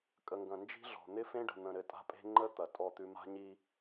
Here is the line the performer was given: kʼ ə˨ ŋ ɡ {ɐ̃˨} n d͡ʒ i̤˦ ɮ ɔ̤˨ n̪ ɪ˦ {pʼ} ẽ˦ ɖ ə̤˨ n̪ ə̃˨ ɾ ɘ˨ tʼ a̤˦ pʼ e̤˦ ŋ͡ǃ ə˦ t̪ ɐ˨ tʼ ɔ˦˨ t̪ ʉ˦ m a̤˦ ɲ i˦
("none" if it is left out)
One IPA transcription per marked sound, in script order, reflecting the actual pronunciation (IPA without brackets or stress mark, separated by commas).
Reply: ɐ̃˨, f